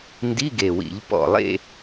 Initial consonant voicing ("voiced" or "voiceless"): voiced